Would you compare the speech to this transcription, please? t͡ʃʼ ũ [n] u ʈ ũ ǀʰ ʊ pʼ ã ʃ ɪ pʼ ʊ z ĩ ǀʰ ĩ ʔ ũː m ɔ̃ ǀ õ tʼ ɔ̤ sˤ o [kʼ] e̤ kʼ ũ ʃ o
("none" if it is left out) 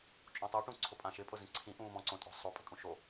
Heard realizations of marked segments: tˤ, pʼ

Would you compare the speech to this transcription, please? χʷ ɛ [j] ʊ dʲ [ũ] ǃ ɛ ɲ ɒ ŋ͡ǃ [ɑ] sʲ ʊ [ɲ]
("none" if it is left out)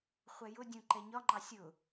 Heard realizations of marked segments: j, ũ, ɑ, none

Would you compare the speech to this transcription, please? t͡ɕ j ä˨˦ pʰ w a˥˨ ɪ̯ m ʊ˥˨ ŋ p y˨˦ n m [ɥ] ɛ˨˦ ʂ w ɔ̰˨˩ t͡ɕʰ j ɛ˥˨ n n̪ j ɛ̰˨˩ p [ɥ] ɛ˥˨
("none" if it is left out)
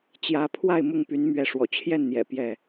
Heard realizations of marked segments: ɥ, j

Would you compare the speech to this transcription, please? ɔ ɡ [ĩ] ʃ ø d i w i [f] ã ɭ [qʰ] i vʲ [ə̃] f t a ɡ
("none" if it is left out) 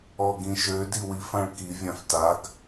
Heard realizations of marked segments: ĩ, f, k, ã

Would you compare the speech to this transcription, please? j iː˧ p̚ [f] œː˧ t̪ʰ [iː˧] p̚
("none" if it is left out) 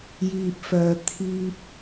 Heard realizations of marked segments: f, iː˧

